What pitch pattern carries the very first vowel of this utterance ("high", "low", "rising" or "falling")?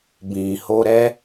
low